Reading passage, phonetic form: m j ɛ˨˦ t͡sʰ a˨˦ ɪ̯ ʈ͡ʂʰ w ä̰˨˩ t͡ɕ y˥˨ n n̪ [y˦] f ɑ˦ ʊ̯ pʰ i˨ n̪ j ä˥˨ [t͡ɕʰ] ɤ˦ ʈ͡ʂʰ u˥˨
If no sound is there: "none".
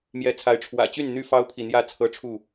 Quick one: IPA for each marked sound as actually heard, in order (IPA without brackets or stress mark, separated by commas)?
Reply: y˦, t͡sʰ